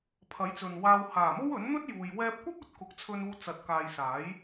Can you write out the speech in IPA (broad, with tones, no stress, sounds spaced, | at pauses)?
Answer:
pʰ ɐ˨˥ j t͡s ɵ˨ n w aː˧ w h aː˨˩ m o˥ w ɵ˨˥ n n̪ ɵ˥ t̚ j uː˨ j w ɛː˧ p̚ kʷ ɐ˥ p̚ ɵ˨˥ t̚ k ʊ˨ k̚ t͡sʰ ɵ˧ n uː˧ t͡s ɐ˨ t̚ k aː˨ j s aː˨˥ j